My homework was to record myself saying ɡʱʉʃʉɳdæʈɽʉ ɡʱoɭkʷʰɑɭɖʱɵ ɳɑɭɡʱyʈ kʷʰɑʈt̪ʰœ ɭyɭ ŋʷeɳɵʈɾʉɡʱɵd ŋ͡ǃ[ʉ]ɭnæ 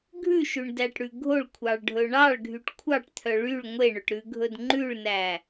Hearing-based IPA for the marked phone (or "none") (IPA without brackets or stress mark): ʉ